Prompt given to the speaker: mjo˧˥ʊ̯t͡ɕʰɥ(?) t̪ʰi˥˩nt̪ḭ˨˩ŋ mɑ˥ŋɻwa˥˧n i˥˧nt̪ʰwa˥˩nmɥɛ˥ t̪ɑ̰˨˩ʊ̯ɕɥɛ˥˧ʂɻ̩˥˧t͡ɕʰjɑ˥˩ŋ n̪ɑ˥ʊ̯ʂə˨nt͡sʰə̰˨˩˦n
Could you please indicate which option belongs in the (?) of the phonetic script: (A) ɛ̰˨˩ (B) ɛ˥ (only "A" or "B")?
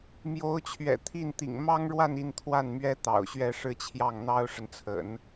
A